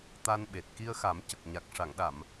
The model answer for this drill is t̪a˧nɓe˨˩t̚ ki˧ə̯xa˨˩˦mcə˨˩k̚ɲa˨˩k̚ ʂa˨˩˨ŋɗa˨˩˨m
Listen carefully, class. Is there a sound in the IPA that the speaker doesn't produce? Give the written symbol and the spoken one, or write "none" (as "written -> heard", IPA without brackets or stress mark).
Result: none